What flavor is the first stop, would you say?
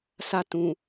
plain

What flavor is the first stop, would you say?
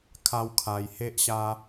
aspirated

